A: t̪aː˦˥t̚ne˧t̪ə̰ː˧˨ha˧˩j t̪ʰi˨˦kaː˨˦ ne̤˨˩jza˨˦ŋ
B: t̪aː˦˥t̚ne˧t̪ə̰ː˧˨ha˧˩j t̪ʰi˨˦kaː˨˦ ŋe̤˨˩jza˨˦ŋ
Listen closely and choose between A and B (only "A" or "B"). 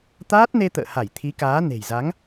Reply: A